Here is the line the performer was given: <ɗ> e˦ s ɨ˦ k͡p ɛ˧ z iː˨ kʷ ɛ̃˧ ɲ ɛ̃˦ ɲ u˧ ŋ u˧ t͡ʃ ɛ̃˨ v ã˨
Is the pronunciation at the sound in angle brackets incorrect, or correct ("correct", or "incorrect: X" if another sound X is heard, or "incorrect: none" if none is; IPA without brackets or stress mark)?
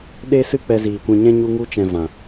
correct